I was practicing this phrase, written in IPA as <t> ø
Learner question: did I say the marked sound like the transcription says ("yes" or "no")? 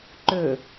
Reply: no